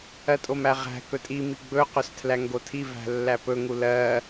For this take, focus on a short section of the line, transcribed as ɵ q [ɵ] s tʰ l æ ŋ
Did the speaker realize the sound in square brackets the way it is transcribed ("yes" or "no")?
yes